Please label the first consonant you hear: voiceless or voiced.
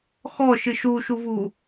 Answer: voiceless